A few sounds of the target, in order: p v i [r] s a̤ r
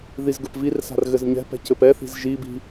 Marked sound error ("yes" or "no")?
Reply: no